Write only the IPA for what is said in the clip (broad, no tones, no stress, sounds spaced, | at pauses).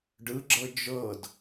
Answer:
ɖ ɯ ɡ͡ǁ ɤ d͡ʒ ɤ d